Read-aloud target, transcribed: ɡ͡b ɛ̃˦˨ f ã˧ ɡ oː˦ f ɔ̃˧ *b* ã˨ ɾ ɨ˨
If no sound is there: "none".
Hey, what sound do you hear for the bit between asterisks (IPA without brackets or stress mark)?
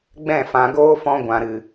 ɡʷ